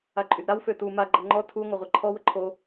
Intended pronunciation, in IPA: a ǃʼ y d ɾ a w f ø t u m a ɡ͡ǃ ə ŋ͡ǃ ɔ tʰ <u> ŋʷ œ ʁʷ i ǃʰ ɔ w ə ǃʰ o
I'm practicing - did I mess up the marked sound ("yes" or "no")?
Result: no